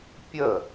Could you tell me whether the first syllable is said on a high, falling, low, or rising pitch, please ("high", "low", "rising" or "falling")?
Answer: falling